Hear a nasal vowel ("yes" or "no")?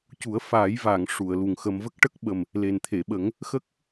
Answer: no